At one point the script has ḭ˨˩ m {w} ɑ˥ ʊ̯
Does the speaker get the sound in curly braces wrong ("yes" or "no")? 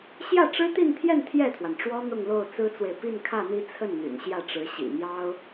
yes